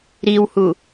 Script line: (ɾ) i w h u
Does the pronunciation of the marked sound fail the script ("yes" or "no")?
no